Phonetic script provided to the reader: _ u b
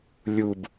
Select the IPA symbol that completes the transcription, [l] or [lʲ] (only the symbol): lʲ